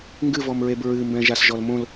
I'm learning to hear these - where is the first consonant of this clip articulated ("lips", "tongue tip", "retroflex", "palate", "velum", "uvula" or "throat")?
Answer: velum